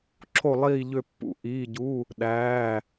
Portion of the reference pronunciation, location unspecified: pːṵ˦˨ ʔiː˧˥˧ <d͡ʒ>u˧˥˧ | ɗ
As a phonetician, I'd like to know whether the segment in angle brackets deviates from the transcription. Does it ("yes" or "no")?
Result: yes